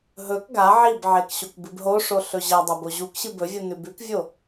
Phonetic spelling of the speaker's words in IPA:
ɦ ɵ k ɡ a ʕ i b ʕ e k ɕ o k b ɨ b ɦ o ʂ o ɬ ɵ ʑ ɐ dˤ ɐ b o ʑ u k ɕ ɨ b ɵ vʲ u n ʉ b ʉ k vʲ o

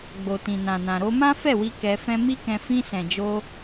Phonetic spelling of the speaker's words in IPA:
ɡ͡b o˨ t ĩ˨ n ã˨ n ã˨ ɾ o˧ m ã˦ f ɛ˦˨ w i˧ k ɛ˧ f ɛ̃˦ m i˦ k ɛ̃˧ f ĩ˧ s ɛ̃˨ d͡ʒ o˧

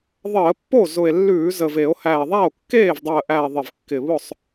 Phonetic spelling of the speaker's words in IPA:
ðˤ əː˧˩˧ pː o˥˩ z ʊ˨˩ e̯ lː ʉː˧˩˧ z ə˨˩ v e˧˩˧ o̯ h æ˨˩ e̯ ðˤ æ˥˩ o̯ kː eː˥˩ v dˤ əː˨˩ ʔ æ˨˩ e̯ ðˤ ɪ˨˩ v kː ɪ˨˩ β ʊ˥˩ sˤ

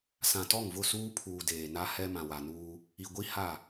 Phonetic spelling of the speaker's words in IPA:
s ã˨ t ɔ˦˨ ŋ v ʊ˦˨ s uː˦ pʰ uː˨ d eː˨ n a˦ h ɛ˦ m ã˨ w a˨ n uː˦ | i˨ ɡʷ i˦ h a˦˨

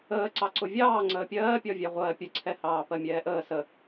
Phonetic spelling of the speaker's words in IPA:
əː ǀ ɑ ǀ ʊ vʲ ɑː ŋ͡ǀ əː pʲ ɜː pʲ ɒ vʲ æ ʁʷ ɜː pʲ ə ǀʰ ɛ h ɑː p ɜ mʲ ɛː ʔ əː s ə

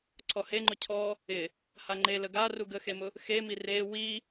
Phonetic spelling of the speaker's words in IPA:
ǀʰ ɔ h e ŋ͡ǃ ʊ cʰ ɔ | ɪ | h a ŋ͡ǃ e l ə ɡ a r u ɡ ə x e m ʊ | x e m i r e w i

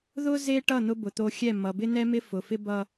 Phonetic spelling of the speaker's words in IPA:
ð ʊ˦ z e˦ ʈ ʌ˦˨ n̪ ʊ˦ b ʊ˨ t̪ o˦ xʲ ɛ˦˨ m ʌ˨ b ɪ˦ n̪ ɛ˦ m ɪ˦ f ʊ˨ f ɪ˦ b ʌ˦

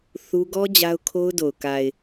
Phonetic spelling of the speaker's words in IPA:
θ u˦ ɡ ɔ˦ d͡ʑ a˦ ʊ̯ kʰ o˦ ʊ̯ d o˨ ʊ̯ k a˨ ɪ̯

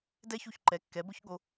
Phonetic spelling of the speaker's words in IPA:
d ɛ˥ ç u˥˩ ç ǃ ɛ˩˥ kː ɛ˩˥ b ʊ˥ ç ɠ o˧

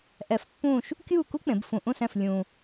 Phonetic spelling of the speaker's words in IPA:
ʔ ɛ˧ f pː ũː˥˧ ʃ | kʲ uː˥˧ k u˥ k͡p ẽ˩˧ b f ũ˧ ʔ ũ˥˧ s ɛ̃˧ f lʲ ũː˧

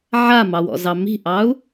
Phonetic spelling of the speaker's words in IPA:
ʕ a m ɑ w ɔ̰ z ɑ m i̤ ʔ ɑ u̯

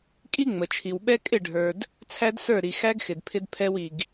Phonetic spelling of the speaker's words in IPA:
kʼ i˦ ŋ͡m ə˨ t͡ʃʰ i˨ w ɓ ɛ˦ kʼ ɪ˦˨ ɖʱ ə˞˨ d | t͡sʰ æ˦ d s ə˞˦˨ ɾ i˨ x æ˦ ɡ x ɪ˨ d pʰ ɪ˦ d pʰ ɛ˦ w i˨ ɡ

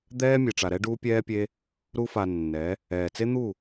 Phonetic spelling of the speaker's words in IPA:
d̪ ɛː˦ mʲ e˨ ʈ͡ʂ a˨ ɾ ɛ˦ ɖ uː˦ pʲ ɛː˦ pʲ e˦ | ɾ u˦ f a˧ nː ɛ˨˦ | ɛː˨ t͡s e˦ n̪ u˦˨

